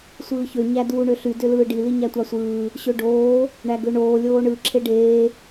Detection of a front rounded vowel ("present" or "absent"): present